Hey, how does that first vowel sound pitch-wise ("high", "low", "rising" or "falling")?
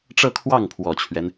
falling